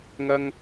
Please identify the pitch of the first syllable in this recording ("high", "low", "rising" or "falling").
high